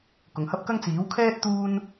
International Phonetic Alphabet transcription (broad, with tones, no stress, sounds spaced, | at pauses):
k ʊ˨ ŋ h ɐ˥ p̚ k ɐ˥ ŋ t͡s iː˨˥ w kʰ ɛː˥ t̚ t̪ uː˥ n